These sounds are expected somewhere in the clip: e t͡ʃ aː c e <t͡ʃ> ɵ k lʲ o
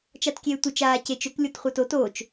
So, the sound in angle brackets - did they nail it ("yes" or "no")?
yes